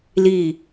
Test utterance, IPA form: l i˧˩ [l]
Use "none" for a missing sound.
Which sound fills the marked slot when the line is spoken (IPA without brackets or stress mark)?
none